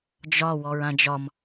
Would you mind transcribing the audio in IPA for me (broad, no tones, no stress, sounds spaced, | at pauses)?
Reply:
d͡ʒ ɒ w ɔ ɹ ã d͡ʒ ɒ m